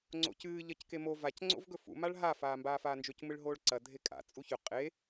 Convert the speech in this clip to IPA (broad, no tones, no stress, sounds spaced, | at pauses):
ŋ͡ǀ o̰ c ɨː ʎ ɐ c k e m o v a c ŋ͡ǀ o̰ v ɡ ɵ f ṵ m a ɭ ɦ a f aː m b aː f aː n d͡ʒ ɵ c m ɨ ɭ ɦ oː ɭ ǀ ɐ dʱ e kʼ a̰ t͡sʼ u ç ɵ qʼ e